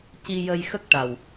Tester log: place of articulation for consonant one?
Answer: palatal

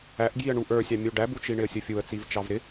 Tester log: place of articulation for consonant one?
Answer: glottal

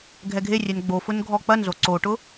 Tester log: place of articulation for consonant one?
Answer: velar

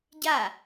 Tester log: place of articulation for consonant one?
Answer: palatal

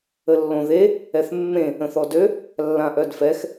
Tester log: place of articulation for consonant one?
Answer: alveolar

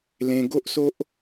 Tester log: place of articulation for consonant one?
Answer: alveolar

